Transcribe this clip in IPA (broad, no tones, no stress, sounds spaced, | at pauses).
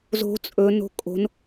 z o̤ t͡sʼ ɵ n o̤ kʼ o̤ n